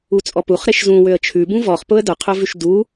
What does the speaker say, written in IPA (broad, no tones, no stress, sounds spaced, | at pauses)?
u t͡sʼ ɔ p u χ ɾ e ʃ z ũ w ø ə̯ t͡ʃʰ ʉ b ũ v ɔ χ p ʊ ə̯ d ʊ qʰ ʊ v ʉ ʃ d u